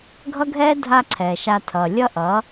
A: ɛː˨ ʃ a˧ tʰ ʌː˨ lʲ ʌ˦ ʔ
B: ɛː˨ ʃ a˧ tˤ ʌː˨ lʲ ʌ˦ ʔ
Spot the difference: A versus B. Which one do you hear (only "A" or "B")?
A